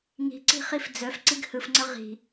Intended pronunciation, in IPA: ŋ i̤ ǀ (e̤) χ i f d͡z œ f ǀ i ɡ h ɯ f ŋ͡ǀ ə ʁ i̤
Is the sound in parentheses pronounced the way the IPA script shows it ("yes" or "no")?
no